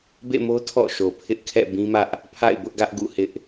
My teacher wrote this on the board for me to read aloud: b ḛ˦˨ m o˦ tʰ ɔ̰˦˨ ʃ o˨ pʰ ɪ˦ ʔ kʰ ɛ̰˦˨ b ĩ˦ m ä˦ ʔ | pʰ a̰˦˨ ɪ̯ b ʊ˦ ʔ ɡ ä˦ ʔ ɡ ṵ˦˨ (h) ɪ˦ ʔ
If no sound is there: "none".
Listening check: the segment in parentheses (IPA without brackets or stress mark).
h